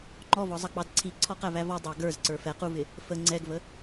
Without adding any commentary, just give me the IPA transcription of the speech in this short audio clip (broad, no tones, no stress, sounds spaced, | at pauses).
ŋ͡ǃ ɔ v ɔ zˤ ʌ k͡p ɑ d ǀʰ i ǀʰ ɔ q æ v æ v ɔ dˤ ɑ ɡ ə˞ z ǀ ə˞ f ɛ q u v ɪ | f ə ŋ͡ǀ ɛ ɡ v ə